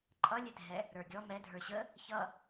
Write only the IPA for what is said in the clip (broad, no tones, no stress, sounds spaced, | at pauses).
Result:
ǃʼ ʌ lʲ ɛ dʱ ɛ | ɾ ə˞ ɡʲ ɔ m ɛ dʱ ə˞ ɕ ə | ç ʌ